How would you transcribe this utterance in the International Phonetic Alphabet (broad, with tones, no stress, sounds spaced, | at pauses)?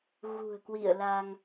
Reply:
ɣ ṳ˨˩ ə̯ k w ḭ˧˨ ə̯ l a˧ ŋ